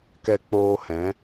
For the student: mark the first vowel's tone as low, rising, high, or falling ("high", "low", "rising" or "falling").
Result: high